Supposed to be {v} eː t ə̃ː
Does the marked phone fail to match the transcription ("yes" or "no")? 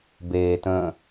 yes